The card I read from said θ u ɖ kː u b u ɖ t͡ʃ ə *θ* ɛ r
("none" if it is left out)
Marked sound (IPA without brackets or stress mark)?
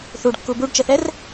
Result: θ